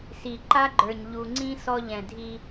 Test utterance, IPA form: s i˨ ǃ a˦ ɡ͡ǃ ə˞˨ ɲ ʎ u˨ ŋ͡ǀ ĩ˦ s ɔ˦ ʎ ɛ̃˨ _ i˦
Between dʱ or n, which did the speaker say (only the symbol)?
dʱ